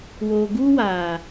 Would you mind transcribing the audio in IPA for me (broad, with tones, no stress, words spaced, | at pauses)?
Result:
woː˨ɡuː˦ waː˨